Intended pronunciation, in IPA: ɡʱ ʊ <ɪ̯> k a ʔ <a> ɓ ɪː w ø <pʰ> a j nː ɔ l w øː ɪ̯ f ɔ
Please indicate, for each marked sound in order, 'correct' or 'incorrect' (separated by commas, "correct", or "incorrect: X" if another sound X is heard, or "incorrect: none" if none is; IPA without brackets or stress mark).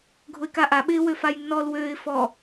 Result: correct, correct, incorrect: f